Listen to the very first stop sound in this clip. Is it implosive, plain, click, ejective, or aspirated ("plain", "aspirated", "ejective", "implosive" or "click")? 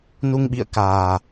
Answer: implosive